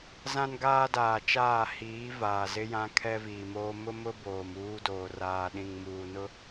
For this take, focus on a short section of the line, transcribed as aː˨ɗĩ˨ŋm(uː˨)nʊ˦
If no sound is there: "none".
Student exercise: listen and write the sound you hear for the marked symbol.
uː˨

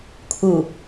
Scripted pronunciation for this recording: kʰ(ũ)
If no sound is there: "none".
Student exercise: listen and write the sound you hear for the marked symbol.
u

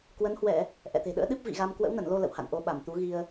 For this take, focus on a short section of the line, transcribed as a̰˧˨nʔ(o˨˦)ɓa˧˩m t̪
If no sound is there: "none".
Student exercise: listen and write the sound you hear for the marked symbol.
o˨˦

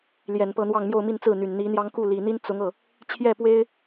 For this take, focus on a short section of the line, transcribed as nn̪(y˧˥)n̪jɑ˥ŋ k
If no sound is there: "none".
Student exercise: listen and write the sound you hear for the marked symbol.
i˧˥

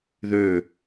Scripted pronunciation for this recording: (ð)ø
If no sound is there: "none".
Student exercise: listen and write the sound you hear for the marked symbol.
ð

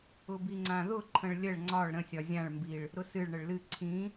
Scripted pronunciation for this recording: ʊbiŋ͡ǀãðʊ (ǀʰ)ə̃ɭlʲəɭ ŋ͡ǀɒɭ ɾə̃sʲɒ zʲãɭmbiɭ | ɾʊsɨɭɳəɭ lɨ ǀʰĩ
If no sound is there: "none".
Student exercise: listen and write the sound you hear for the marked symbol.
ǃʰ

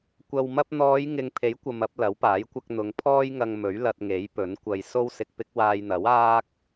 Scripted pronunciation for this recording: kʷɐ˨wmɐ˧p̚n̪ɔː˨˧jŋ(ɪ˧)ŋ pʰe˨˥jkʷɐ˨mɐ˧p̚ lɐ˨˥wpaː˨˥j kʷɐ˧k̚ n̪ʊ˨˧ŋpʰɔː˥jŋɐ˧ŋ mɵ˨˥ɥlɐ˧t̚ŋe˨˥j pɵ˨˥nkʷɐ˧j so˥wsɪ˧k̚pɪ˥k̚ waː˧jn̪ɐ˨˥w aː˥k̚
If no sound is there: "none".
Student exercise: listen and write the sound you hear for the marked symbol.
ɪ˨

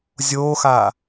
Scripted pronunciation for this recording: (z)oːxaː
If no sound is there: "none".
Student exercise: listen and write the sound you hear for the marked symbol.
zʲ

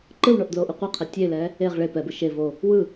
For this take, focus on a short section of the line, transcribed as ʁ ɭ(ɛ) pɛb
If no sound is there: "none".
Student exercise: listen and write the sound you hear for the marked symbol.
e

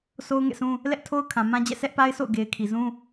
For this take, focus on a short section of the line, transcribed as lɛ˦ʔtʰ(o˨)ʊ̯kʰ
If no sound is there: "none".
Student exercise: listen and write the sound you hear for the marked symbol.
o˦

